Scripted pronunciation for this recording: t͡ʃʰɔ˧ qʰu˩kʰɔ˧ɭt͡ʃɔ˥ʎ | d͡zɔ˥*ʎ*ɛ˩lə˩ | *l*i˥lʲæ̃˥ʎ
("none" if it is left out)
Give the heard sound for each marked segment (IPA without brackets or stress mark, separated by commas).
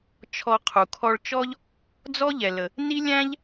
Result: ʎ, n